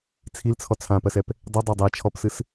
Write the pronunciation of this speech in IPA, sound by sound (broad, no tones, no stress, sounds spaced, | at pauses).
t͡sʰ i l t͡sʰ ɔ t͡sʰ ã p ɜ s ɛ p | dˤ i dˤ a dˤ ɛ t͡ʃʰ ɔ p s ɨ s